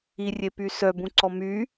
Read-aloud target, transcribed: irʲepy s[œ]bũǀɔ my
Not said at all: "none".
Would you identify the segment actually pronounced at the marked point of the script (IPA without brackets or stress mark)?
œ